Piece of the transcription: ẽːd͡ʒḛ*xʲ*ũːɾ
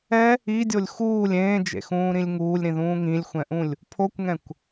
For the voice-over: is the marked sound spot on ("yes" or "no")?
no